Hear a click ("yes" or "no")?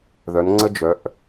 yes